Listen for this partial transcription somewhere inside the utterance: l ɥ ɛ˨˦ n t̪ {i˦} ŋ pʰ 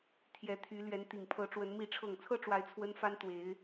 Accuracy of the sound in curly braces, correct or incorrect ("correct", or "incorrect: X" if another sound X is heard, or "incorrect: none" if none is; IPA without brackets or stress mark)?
incorrect: i˨˩